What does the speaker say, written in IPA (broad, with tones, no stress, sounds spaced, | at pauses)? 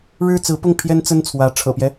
ɻ ɻ̩˥ t͡s ɹ̩˧˥ p ʊ˥˩ ŋ pʰ j ɛ˥ n t͡s ə˥ n t͡sʰ w ä˧˥ ʈ͡ʂʰ ɤ̰˨˩ p j ɛ˦